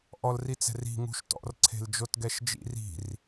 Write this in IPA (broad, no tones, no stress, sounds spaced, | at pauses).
ʔ ɔ l r i t͡s ɛ̤ r i̤ ŋ ṳ ʃ t ɔ̰ r ǀʰ e̤ l d͡ʒ o t ɡ ɛ ʃ d͡ʒ ḭ r i̤ r